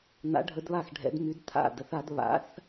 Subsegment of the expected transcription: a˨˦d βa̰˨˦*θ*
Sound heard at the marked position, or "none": θ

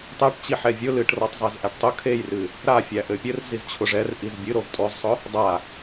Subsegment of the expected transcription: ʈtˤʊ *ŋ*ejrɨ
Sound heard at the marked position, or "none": kʰ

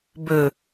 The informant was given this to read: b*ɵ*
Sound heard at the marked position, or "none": ɵ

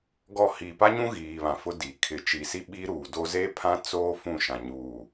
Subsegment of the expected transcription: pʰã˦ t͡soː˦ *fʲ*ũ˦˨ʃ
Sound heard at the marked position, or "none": f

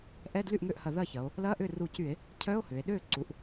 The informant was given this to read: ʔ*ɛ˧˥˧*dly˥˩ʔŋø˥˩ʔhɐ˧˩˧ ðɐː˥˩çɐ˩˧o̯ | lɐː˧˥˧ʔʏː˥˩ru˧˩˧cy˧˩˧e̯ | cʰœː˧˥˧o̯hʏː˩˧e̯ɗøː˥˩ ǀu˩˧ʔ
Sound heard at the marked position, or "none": ɛ˧˥˧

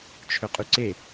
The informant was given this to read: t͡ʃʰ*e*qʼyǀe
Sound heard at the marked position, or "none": ø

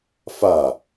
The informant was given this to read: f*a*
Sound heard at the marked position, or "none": a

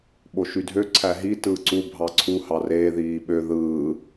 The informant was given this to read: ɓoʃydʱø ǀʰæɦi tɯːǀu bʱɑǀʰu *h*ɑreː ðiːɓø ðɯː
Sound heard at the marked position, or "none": h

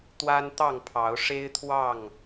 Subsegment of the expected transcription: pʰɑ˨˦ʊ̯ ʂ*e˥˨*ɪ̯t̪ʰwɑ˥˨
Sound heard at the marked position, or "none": e˦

